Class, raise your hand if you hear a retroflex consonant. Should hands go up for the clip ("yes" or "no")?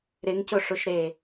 yes